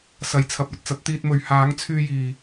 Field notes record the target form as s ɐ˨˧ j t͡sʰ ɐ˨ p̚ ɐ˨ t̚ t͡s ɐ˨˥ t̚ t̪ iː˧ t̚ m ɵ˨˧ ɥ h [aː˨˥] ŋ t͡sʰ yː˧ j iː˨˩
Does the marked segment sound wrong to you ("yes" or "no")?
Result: no